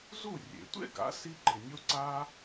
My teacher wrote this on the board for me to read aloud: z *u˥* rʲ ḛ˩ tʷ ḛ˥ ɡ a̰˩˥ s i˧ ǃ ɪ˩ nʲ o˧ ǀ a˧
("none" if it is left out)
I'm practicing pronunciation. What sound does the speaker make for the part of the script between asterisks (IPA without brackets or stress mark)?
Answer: u˥˩